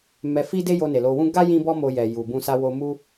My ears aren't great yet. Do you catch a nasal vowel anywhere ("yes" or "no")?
yes